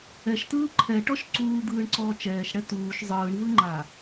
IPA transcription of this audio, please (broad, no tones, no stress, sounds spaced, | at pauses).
ɛ ʃ t ɯː ǃʰ ɛ ʈ ɔ ʃ ǀ uː d̪ ɯː ɳ ǀ ɔː t͡ʃ ɛː ʃ ɽ ɛ t uː ʃ zˤ ɯː ɳ v ɯ ŋ͡ǃ a